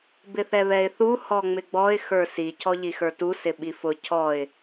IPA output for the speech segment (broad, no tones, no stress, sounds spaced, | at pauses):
b ɪ θ ɛ β ɛ ɪ̯ θ u h ɔ ŋ͡m ɪ ɡ͡b ɔ ɪ̯ x ə˞ s i cʰ ɔ ʎ i x ə˞ t u s ɪ ɓ i f ʊ cʰ ɔ ɪ̯